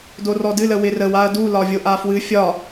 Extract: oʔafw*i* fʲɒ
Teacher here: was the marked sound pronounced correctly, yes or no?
no